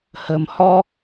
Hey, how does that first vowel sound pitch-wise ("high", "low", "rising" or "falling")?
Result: low